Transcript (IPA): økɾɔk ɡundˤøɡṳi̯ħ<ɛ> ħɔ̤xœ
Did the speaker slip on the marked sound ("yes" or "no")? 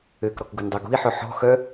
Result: yes